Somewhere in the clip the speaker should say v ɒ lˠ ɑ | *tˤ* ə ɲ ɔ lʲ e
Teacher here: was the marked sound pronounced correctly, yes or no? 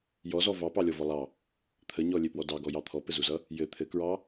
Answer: no